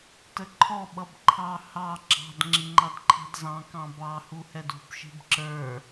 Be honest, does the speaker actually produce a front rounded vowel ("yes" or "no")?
no